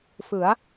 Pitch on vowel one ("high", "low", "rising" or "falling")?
rising